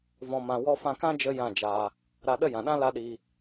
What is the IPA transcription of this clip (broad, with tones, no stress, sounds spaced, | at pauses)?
v ɔ̃˧ m ã˧ w ɔ˧ f ã˧ k ã˦ d͡ʒ ə˧ j ã˦˨ d͡ʒ aː˧ | ɾ a˧ ɗ ə˦ j ã˨ ɗ ã˦ l a˦ ɗ iː˧